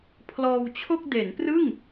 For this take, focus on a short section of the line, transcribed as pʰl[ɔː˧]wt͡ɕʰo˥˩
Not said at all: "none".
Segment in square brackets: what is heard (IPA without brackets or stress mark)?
ɔː˧